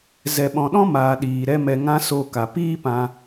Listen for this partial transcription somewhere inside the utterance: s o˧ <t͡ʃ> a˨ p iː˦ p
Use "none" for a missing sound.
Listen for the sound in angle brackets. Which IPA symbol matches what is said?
k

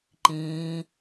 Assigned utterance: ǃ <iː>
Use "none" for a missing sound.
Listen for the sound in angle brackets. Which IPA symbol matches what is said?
ĩː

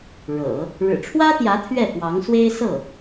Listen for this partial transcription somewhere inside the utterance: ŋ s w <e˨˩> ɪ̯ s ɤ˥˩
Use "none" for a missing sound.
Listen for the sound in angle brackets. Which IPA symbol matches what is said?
e˥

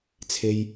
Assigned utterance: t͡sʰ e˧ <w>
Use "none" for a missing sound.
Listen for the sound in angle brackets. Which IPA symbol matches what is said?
j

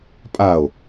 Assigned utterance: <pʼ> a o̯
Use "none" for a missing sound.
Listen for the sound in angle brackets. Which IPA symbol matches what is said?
pʼ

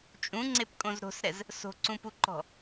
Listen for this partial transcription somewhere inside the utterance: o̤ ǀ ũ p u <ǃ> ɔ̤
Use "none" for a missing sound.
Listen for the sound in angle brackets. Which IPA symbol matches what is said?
ǃ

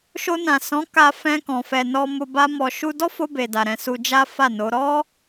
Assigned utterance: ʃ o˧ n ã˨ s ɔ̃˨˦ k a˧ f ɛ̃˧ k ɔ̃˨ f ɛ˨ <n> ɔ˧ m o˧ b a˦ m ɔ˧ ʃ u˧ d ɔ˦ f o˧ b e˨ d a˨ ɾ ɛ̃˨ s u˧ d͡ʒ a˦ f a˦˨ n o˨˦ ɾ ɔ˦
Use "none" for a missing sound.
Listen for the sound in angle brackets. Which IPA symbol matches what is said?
n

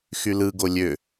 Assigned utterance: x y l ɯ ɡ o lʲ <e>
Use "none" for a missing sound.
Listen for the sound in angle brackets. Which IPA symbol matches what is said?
ø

